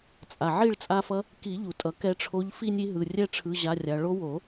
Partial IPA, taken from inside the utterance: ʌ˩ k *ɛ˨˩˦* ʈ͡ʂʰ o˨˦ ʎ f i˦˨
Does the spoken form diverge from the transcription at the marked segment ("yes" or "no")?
yes